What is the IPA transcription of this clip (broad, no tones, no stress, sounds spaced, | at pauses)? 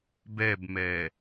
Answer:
b ɛ b m ɛ